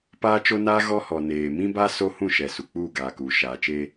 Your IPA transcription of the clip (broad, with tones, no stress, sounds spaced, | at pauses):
p aː˦ t͡ʃ o˦ n aː˦ ɣ ɔ˦ h ɔ˨ n eː˨ m ĩ˦ b a˦ s o˦ h ũ˦˨ ʃ ɛ˨ s u˨ k͡p uː˦˨ ɡ aː˨ k uː˨ ʃ aː˨ t͡ʃ eː˦